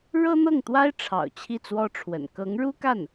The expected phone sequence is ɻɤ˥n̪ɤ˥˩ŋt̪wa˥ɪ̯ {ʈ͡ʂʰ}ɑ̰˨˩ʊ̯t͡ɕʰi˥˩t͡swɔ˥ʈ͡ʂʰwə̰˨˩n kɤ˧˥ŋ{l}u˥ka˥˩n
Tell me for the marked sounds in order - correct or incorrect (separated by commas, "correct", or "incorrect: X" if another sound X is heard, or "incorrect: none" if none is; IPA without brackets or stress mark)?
correct, incorrect: ɻ